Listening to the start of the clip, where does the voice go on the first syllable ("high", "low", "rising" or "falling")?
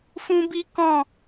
high